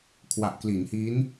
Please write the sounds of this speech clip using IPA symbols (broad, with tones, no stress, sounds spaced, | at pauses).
kʰ w a˨˩ ʔ k l i˩˦ n h i˦˥ n